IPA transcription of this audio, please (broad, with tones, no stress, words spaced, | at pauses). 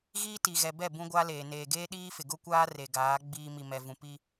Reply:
ɣiː˦ti˨ɣɛ˨bɛ˦˨ bũ˦ɡʷa˦leː˨ neː˨ɡeː˦ɗiː˦fɪ˨ ɡʊ˦kʷaː˦ re˨ɡaː˨˦ ɡ͡biː˦ mi˨mɛ˨ vũ˨pi˦